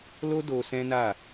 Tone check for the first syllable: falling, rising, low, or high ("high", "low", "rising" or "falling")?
high